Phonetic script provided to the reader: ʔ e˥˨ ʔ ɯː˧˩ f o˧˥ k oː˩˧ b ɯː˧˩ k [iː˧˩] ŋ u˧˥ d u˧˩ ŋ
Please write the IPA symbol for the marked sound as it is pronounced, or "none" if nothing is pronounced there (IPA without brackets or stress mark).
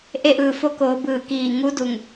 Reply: iː˧˩